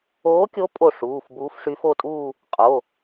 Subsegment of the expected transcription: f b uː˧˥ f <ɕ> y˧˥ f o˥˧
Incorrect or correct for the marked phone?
incorrect: ʂ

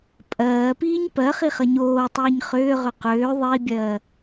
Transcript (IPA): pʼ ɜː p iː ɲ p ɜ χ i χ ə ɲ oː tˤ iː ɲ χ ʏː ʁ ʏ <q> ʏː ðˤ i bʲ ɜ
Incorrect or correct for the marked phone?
correct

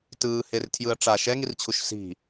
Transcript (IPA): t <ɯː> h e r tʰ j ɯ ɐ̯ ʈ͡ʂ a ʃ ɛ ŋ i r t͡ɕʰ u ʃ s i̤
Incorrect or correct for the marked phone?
correct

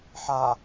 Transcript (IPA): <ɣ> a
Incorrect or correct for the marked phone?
incorrect: ħ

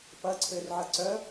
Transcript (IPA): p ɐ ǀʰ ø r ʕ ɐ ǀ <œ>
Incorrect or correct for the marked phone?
correct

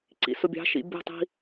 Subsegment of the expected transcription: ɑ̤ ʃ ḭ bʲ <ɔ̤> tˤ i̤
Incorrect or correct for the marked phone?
correct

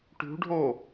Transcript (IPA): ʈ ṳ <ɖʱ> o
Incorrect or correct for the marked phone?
correct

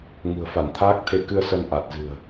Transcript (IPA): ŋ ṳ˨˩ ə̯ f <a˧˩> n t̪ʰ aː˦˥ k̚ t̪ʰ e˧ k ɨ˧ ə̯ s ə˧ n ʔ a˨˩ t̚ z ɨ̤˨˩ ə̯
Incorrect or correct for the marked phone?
correct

